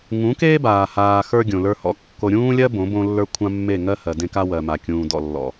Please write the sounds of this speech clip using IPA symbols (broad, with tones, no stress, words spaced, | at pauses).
ŋũ˨˦keː˦baː˨haː˨ xə˞˦ ɡʲõ˨lə˞˦hɔ̰˦ kːo˨ɾʲũː˦lʲɜ˦ bõ˨˦bõ˦lːə˞˦ kʷʰã˦mːe˦˨ ŋɜ˦hɜ˨dẽ˦ka˦ wɜ˨ma˨ kʲũː˨dɔ̰˦˨lːɔ̰˨